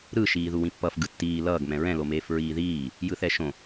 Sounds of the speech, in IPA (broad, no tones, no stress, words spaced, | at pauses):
ɾɯ ʃiːðuwĩpːʌf ɡɯtːiː lʌːɡ mɛ̃ɹɛ̃ lomeːfɹiːðiː | jɯθɛʃõ